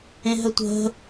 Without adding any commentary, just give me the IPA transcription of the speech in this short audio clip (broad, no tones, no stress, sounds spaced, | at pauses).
ẽ ɦ ə tʷ ə̤